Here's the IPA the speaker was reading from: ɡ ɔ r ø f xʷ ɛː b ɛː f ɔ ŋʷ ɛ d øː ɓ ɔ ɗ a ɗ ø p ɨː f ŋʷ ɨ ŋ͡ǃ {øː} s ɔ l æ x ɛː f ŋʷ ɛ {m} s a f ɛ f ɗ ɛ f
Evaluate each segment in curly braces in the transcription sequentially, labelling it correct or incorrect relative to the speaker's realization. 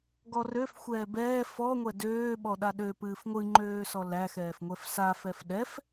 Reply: correct, incorrect: f

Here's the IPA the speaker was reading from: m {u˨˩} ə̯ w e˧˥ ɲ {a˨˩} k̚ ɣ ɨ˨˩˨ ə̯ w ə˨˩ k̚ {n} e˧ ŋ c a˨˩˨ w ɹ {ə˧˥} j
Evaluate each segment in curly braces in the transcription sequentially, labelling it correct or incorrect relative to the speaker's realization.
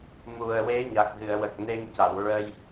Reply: correct, correct, correct, incorrect: ə˧

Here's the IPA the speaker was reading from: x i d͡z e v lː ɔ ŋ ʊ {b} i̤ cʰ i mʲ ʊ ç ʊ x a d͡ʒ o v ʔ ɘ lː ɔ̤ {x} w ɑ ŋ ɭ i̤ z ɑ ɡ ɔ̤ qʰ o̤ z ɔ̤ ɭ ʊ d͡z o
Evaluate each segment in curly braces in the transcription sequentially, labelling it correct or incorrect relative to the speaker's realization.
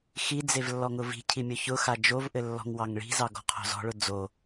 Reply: incorrect: v, incorrect: ŋ

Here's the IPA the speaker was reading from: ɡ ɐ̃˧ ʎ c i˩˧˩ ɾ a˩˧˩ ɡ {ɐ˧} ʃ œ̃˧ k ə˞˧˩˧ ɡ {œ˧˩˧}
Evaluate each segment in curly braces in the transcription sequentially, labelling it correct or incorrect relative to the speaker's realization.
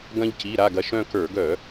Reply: correct, correct

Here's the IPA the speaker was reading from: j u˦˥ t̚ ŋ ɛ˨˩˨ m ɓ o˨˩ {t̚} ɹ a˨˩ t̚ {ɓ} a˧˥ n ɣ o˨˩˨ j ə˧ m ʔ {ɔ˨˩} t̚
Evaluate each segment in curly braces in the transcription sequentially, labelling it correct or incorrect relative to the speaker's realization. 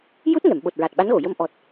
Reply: correct, correct, correct

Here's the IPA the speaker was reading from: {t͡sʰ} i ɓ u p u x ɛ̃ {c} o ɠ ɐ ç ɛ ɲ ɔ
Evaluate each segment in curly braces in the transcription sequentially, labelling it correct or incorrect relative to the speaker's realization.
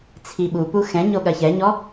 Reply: correct, incorrect: ɲ

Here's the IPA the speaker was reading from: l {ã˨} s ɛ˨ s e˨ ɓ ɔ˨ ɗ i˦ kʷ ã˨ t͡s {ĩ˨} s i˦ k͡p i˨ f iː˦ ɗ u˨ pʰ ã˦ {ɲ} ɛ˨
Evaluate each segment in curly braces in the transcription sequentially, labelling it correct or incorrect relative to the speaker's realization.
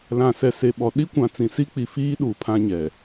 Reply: correct, correct, correct

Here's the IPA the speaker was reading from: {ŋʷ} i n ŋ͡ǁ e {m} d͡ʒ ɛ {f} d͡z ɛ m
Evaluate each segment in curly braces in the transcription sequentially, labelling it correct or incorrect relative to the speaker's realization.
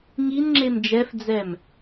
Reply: incorrect: ŋ, correct, correct

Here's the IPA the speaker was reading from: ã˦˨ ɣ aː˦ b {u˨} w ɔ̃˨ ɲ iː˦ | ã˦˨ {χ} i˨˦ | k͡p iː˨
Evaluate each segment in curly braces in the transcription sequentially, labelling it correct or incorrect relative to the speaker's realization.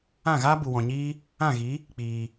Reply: correct, incorrect: ɣ

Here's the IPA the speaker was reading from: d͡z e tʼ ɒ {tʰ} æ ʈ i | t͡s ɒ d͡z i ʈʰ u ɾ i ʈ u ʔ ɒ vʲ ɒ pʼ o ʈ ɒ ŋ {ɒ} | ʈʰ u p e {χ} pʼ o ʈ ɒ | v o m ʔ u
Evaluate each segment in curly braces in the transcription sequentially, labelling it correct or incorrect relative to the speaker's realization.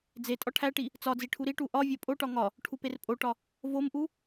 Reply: incorrect: ʈʰ, correct, incorrect: r

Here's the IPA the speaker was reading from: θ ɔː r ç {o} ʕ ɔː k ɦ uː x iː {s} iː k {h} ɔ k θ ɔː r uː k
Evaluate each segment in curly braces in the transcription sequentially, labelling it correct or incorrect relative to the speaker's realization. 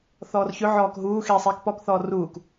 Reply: incorrect: ɵ, incorrect: sˤ, incorrect: p

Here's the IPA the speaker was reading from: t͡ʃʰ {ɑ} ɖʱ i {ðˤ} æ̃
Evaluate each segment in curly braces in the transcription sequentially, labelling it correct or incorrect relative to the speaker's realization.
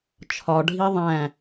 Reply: incorrect: ɒ, correct

